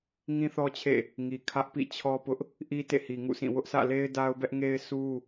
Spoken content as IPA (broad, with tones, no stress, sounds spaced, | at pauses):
ŋ ĩ˦ θ ɔ˦ t͡ɕʰ ḛ˦˨ | ŋ i˨ kʰ ä˦ ʔ p ḭ˦˨ t͡ɕʰ ɔ˦ p ʊ˦ ʔ | ʔ i˦ t ḛ˦˨ h i˨ ŋ ṵ˦˨ sʰ ĩ˦˨ w ʊ˦ ʔ sʰ ä̰˦˨ l e˦ ɪ̯ d a˦ ʊ̯ b ɛ˦ ʔ ŋ e˦ ɪ̯ sʰ u˦